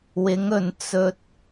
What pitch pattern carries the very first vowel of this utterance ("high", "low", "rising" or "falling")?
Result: rising